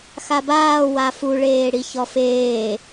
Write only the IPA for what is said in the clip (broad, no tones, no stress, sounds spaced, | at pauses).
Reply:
x a b aː w a f u ɭ eː ɽ i ç ɔ f eː